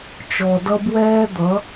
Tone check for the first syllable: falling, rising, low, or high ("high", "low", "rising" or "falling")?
low